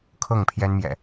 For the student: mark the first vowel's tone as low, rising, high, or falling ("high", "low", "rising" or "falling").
falling